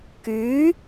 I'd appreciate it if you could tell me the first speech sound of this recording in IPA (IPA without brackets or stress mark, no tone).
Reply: k